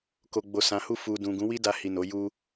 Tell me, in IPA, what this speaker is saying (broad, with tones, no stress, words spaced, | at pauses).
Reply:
ko˨ɡ͡bo˨sã˨hu˧ fu˨dũ˨ ɡũ˨˦wi˦da˧hi˨ no˨˦ju˦